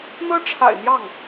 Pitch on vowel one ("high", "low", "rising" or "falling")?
high